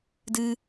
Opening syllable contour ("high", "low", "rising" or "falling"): high